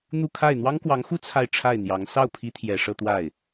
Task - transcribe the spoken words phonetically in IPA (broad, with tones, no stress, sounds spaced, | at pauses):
n̪ u˥˧ kʰ a˥˩ ɪ̯ n̪ w ɑ˥ ŋ k w ɑ˧˥ ŋ x u˥ t͡sʰ a˥˧ ɪ̯ ʈ͡ʂʰ a˥˩ ɪ̯ n̪ j ɑ˧˥ ŋ s ɑ˥˩ ʊ̯ pʰ i˧˥ t̪ʰ j ɛ˨˩ ʂ ɤ˥˧ t̪ w a˥˩ ɪ̯